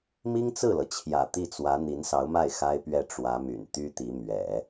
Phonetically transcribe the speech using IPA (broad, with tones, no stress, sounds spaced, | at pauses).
m i˥ ŋ t͡s ɹ̩˥˩ l ɤ˩ t͡ɕʰ j ä̰˨˩ t̪ i˥˩ t͡s w ä˧˥ n̪ i˧˥ n s ɑ˧˥ ʊ̯ m a˥˩ ɪ̯ x a˥ ɪ̯ p ɥ ɛ˥˩ ʈ͡ʂ w ä˧˥ m y̰˨˩ n t̪ y˥ t̪ i˧˥ m ɥ ɛ̰˨˩˦